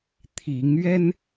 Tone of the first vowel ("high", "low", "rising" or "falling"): rising